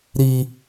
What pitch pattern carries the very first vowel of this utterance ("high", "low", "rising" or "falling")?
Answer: high